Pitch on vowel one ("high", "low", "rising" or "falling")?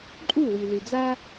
falling